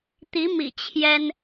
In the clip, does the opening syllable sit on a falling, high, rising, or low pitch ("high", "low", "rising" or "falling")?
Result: rising